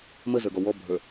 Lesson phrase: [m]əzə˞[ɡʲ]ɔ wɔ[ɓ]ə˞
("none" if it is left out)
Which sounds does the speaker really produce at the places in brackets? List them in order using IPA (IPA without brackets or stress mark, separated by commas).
m, ɡ, bʱ